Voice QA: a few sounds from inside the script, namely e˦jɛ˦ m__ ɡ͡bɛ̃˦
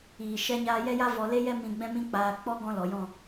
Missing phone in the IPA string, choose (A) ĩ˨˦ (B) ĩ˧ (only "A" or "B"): B